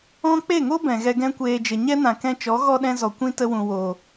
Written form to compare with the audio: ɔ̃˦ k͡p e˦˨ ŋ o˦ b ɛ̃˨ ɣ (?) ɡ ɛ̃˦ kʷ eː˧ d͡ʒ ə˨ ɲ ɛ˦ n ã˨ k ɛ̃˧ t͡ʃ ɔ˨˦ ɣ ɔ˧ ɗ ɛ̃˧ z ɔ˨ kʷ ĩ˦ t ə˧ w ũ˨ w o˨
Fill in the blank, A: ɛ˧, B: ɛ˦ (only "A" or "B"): A